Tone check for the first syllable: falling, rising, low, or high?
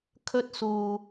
high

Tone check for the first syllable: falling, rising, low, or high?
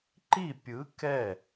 falling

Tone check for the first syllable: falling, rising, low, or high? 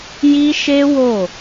high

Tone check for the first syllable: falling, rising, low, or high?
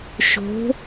rising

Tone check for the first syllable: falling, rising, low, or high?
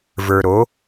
low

